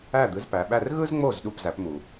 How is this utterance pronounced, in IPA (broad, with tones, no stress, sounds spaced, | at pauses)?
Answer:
æ˥˩ d̪ ɯ˩˥ z p æ˩ ɓ æ˥˩ r ɣ ɯ˥ z ŋ͡m o˥˩ z ɗ u˥˩ p z æ˩˥ p m u˩